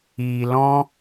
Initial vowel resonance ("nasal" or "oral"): oral